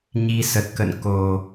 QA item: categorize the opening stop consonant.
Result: plain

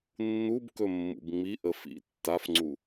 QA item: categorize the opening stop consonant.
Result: plain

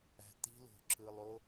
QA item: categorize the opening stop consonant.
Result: plain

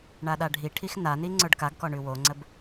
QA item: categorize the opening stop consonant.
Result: implosive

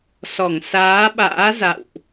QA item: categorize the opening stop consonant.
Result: implosive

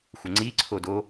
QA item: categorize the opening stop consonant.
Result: click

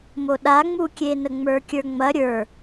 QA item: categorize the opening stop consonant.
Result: implosive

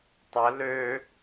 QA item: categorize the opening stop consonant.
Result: plain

